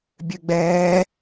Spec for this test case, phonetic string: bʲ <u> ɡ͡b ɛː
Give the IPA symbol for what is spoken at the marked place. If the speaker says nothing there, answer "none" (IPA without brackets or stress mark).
ø